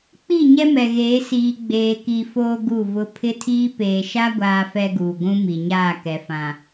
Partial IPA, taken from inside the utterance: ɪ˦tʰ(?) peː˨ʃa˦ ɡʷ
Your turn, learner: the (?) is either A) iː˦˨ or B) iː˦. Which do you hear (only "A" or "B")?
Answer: B